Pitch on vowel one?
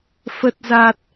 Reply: low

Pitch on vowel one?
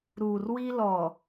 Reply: low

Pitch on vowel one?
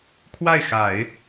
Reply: falling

